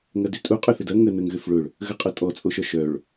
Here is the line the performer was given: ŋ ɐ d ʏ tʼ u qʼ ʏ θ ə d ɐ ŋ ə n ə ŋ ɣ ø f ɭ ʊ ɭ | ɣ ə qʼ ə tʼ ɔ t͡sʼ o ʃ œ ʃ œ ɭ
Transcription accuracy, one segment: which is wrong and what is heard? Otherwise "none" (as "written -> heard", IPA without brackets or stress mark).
none